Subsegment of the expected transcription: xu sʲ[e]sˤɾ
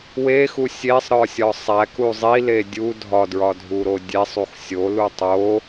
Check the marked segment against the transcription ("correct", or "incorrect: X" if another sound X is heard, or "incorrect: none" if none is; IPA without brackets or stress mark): correct